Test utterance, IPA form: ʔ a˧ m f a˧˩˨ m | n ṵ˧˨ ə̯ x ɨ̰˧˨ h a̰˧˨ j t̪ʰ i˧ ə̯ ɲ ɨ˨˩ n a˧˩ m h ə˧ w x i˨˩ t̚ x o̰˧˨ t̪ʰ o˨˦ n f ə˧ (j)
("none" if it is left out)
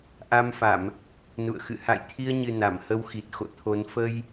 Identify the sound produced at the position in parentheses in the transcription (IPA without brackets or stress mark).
j